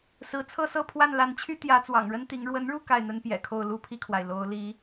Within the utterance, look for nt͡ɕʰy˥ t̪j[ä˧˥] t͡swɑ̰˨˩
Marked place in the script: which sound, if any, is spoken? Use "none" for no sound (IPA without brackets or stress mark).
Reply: ä˧˥